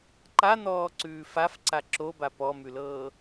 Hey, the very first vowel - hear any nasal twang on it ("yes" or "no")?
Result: no